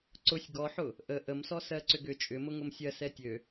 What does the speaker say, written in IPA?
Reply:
ǀʊsʲ ɡɔħʊ | ʔə ʔəmsɔ sɜǀʏɡʏ t͡ʃʼʏ mʊŋʊmsʲɜ sɛtʲø

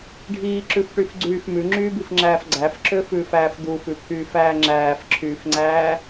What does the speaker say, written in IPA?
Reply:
ɖʱiːǁʉfʈyfɡ͡ǀyːf mʉŋ͡ǁyːbifŋ͡ǁæːf ɡ͡ǀæfǁøfʉːfæːf d̪ufʉpʰyːfæː ŋ͡ǁæːfǁʰyːfŋ͡ǀæː

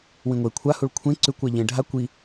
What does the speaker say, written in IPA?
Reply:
wĩŋʷe kʷʰahuɭ kʷʰẽ ǀʉkʷa ʎẽ ɖʱa kʷi

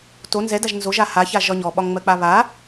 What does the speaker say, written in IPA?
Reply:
to nzɛdaʒ nzoʒa haça ʒɒɲɔɓɒŋ ŋ͡mɜk͡paβa

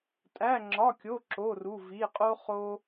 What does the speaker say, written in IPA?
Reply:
tʼæ˧˥˧ŋ͡ǁɒ˧˥˧kʲo˧˥˧ ǁo˧˥˧ ru˧˥˧vi˧˥˧ qʼo˥χo˥

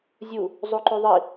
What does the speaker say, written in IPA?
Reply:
zʲu | zˤoǃoðˤi

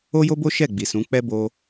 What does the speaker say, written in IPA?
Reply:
o˦jo˦bo˦ ʃɛ˦˨ ɡ͡bi˨sũ˨˦k͡pɛ˦ bo˧

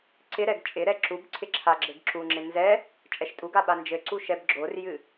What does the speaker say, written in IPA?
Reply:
ǀɪɾɛɡ t͡ʃʼɪɾɛ ǁub ǀʰɪǁʰaɡ͡ǁɘɡ ǁuŋ͡ǁɪ nzɛ | t͡ʃʼɛʃtʼuɡa ɓand͡ʒɘǀu ʃɛbɡ͡ǁorjɨ

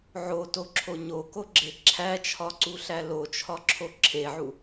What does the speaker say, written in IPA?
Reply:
ʕotoǁʰo ɲokoɡ͡ǁe ǁʰæt͡ʃʰɒǀuɬæ lot͡ʃʰɒǁʰo ǁʰeʕu

